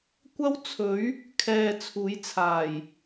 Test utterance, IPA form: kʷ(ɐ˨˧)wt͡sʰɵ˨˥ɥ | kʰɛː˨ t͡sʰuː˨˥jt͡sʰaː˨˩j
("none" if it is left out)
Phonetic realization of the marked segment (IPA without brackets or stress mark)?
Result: ɐ˥